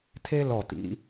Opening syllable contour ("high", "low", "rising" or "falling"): high